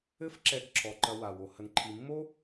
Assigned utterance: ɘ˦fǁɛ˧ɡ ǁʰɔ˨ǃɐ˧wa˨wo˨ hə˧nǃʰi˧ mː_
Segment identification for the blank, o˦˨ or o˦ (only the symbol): o˦